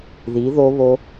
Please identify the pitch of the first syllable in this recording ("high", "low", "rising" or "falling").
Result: rising